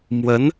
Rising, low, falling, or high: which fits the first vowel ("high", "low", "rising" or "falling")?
rising